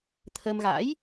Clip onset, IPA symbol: t̪ʰ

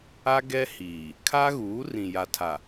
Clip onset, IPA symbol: a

